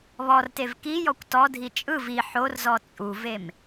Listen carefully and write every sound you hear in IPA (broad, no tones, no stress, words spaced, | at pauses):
βɔrtev kijɔkʷ tɔdʱi t͡ʃʼɯv i ħorzɔ t͡sʼuvem